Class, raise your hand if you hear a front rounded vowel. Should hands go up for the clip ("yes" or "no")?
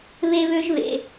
yes